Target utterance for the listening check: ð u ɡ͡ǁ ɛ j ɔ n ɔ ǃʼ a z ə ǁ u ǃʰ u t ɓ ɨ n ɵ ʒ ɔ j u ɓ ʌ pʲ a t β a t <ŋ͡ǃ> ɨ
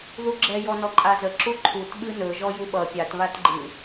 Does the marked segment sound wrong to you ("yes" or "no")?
yes